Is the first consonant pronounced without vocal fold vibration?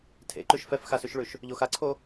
yes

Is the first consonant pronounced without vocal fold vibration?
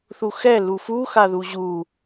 yes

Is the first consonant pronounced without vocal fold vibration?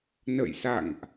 no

